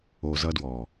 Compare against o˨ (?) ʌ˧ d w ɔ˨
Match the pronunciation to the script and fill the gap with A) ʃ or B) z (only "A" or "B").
B